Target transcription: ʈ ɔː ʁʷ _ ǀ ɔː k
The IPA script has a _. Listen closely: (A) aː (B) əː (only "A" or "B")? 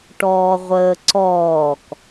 B